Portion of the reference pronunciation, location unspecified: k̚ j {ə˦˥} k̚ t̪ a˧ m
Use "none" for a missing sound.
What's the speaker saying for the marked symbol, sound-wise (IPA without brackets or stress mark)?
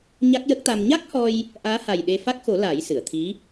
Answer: ə˦˥